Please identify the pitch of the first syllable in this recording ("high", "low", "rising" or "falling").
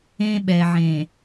high